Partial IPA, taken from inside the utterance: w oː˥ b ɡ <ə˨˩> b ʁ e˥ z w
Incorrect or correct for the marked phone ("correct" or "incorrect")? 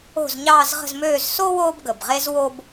correct